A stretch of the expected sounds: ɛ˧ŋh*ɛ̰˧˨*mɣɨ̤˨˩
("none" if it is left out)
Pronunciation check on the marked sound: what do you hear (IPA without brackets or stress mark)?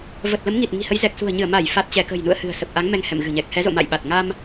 ɛ̰˧˨